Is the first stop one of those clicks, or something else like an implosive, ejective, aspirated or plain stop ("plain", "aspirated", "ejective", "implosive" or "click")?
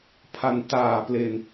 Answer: aspirated